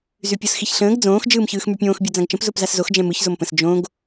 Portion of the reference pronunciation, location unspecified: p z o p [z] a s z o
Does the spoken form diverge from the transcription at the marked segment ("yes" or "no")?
no